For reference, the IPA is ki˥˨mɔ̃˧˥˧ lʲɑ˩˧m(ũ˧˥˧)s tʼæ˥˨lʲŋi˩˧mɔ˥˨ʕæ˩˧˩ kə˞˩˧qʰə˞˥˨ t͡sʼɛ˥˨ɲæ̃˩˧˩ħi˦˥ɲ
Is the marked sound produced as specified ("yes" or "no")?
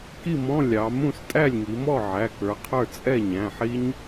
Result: no